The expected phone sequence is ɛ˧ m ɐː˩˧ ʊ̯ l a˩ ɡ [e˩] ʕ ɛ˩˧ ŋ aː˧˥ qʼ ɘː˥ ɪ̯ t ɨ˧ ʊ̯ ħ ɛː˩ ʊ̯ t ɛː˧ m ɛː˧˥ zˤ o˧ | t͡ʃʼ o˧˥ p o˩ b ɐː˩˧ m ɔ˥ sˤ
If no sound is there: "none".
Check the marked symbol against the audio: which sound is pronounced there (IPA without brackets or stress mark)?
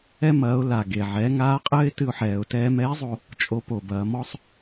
e˩